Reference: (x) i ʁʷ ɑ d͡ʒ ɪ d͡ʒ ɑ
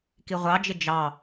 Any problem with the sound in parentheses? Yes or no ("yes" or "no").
yes